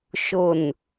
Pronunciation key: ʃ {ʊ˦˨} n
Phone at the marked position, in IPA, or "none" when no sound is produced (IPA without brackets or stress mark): ʊ˦˨